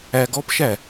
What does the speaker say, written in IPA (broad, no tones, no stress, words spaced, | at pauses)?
æɡɔpʃæ